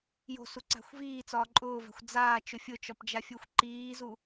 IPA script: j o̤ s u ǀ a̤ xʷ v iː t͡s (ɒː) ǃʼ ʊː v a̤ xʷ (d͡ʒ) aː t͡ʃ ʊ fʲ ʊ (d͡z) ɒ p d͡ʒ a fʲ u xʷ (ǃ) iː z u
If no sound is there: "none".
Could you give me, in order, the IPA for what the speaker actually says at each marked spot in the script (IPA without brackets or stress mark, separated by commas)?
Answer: ɒː, d͡z, t͡ʃ, ǃ